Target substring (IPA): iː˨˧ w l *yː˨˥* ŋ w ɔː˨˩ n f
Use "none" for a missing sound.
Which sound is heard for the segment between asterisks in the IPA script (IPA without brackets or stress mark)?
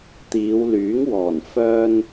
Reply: yː˨˥